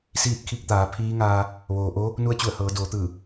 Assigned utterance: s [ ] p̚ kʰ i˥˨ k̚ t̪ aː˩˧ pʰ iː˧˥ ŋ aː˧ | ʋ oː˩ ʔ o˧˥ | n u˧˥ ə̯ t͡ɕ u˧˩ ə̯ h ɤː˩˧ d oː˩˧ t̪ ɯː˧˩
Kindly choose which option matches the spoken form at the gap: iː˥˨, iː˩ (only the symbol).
iː˥˨